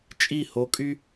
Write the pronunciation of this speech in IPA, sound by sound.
t͡ʃʼi˦˨ho˧kʼy˦

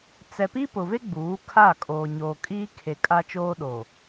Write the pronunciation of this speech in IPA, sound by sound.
t͡sɛ˨pi˦ pʊ˨ve˦ ɡ͡buː˨˦kʰa˦˨ kʼoː˨ɲoː˨kʼiː˦kʰe˨ kʼa˦t͡ʃoː˦ ɗo˨

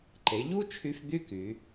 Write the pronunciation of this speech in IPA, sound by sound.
ǃe˩˧ʎu˥t͡ʃʰy˧f d̪y˥ky˩˧

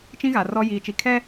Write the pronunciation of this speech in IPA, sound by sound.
t͡ʃĩ˦ɣa˨ rɔ˦ jiː˨t͡ʃi˨kʰɛ˦

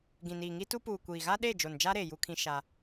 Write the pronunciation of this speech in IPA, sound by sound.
ɡĩ˨niː˨ŋi˦tu˦ puː˨ kʷiː˨ɣa˦ɗe˦˨ d͡ʒo˨nd͡ʒa˦ɾe˨ ju˦kʰĩ˦ ʃa˦

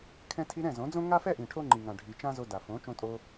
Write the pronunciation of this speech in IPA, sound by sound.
kʰɛ̃˧tʰi˧ ɾɛ̃˦˨zõ˨˦d͡zõ˦ ŋa˦fɛ˦ʔĩ˨ ʈʰo˦ŋ͡ǃi˨ŋã˨ɖʱi˨ t͡ʃã˦zo˧da˨ fõ˨˦ t͡ʃõ˧tʼo˧

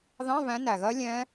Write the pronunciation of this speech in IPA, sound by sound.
ðɑ̃˧˥˧βæ̃˨˦ næ˨˩ɣɜ˦˥ lʲɛ̃˦˥

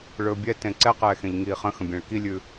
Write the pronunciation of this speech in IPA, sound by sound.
ɭɵːbʲɛtẽ ǀɛqɛːxẽʎ ŋiːχə̃xə̃ bʲẽɭkilʲʉ

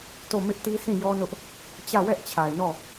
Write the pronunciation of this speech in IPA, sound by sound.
to˦˨mɪ˦ʔti˦ sĩ˦˨ jɔ˦nʊ˦ʔ | t͡ɕä˦˨wɛ˦ʔt͡ɕʰa˨ɪ̯nɔ˦˨

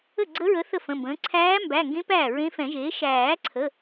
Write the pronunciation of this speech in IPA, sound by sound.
ə˥˩ɡ͡ǀə˧˥ɹə˩˥ θə˥˩fə̃˩˧˩mbə̃ː˩˥ ǀʰæː˧˥mbæ˩˧˩ŋɡẽ˧˥ pæː˥˩ɹẽ˧˥fɛ̃˨˩˦ʒeː˩˥ ʃæː˨˩˦ǀʰə˩˧˩

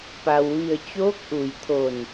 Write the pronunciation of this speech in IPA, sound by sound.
pa˩w ʋi˧˩ə̯ t͡ɕoː˧˥k̚ʔu˩jt̪ʰo˧˩n

